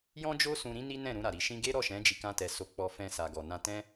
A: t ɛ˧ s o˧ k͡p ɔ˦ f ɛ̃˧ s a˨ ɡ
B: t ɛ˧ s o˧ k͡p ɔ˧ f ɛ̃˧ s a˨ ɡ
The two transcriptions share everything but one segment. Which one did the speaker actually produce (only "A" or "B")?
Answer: B